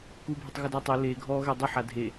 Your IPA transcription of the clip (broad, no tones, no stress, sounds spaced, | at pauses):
k u bʱ ɪ tˤ ɣ u d a tˤ ʊ l e ɡʱ ɔ ɣ ɛ dˤ u ħ a dʱ e